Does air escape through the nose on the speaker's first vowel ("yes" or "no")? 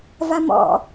no